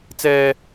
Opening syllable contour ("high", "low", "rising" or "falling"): high